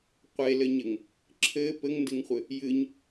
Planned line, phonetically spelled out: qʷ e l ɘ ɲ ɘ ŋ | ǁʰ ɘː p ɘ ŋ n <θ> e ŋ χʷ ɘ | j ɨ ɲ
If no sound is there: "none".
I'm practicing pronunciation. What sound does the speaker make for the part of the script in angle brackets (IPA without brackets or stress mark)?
d